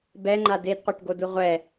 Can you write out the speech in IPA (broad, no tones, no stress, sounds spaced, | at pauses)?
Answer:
b ɛ ŋ͡ǃ a d e d qʷ e ʈ ɡ o d u ʁʷ ɛ